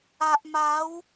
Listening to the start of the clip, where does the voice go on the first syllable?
low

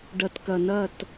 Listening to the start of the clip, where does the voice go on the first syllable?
low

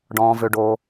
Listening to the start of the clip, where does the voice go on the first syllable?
low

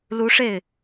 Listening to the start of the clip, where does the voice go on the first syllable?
rising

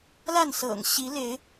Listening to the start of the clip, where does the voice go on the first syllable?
falling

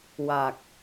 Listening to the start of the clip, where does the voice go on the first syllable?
low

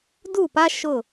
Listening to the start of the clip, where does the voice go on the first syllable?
falling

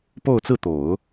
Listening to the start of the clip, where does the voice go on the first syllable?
falling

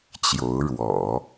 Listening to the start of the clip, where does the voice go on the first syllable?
rising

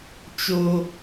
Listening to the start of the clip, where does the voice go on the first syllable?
low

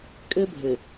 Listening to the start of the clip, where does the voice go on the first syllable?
high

